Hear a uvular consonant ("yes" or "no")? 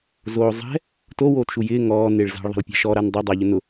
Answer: no